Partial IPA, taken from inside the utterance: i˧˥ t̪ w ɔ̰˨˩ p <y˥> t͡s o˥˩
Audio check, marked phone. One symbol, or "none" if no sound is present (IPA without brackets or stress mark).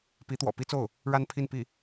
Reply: i˥